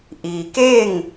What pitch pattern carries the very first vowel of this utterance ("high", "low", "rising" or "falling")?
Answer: low